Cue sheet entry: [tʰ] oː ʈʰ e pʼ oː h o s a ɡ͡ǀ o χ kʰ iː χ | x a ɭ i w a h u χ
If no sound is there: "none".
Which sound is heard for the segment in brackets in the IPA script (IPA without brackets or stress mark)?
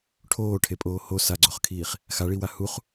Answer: ʈʰ